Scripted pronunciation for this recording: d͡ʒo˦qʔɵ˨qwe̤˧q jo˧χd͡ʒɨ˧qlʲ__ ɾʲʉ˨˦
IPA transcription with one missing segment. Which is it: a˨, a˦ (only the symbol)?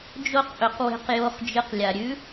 a˨